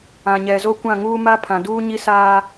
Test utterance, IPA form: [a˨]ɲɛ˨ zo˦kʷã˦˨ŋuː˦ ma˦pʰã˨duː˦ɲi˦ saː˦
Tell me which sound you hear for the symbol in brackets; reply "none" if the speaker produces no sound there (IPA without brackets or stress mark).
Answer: ã˨